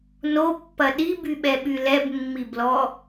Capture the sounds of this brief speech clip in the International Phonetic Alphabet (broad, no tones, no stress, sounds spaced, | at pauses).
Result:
n o pː ɐ ɗ i b y ɓ ɛ ɓ y l ɛ b mː i b l ɔ